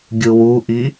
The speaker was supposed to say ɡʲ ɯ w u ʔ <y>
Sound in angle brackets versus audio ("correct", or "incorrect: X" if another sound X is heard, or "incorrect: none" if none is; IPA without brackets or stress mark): incorrect: i